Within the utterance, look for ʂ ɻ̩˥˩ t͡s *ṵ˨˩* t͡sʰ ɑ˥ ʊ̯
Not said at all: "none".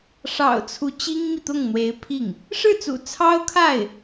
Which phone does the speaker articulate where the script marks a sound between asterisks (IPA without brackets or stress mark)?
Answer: ṵ˨˩